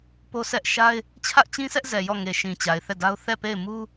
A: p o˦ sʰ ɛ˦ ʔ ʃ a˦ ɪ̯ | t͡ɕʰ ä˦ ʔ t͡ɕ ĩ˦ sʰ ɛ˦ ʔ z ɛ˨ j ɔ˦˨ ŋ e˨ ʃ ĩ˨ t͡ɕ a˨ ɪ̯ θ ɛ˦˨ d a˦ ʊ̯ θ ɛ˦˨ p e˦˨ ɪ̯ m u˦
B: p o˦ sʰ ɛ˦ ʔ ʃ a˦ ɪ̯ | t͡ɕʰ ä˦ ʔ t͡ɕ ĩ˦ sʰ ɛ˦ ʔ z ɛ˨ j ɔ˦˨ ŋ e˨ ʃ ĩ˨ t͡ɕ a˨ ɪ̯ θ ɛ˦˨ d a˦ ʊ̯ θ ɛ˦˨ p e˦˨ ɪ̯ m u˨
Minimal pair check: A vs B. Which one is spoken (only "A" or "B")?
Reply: A